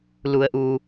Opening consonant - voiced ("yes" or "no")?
yes